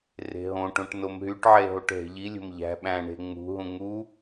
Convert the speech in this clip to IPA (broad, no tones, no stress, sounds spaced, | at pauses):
r e̤ ɦ õ ʈ õ ʈ n o m ɦ y ʈ ʕ e ɦ o ʈ ɦ e̤ ʎ i lʲ o̤ m ʎ æ̤ ɓ æ̃ ɳ e̤ ŋ͡m ṳ ɦ ũ ŋ u